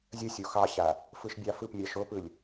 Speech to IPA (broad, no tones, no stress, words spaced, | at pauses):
zʲəsʲo xɑɕa | fɯʃbʲɑfɯpmʲɑ ʃopɯlʲ